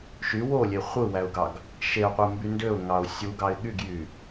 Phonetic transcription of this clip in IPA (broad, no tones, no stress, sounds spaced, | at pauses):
ʃ y w o lʲ e χʷ ɯ w æ ʊ̯ ɡ ɑ ɡ | ʃ e ʊ̯ qʷ ɯ m b y n d ø ʊ̯ ŋ ɑ ʊ̯ sʲ u ɡ ɑ ɪ̯ ɠ y ɡ j y